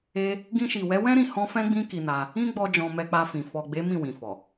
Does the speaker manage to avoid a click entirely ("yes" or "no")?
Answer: yes